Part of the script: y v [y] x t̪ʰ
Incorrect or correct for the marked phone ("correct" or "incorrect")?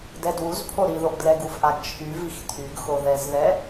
incorrect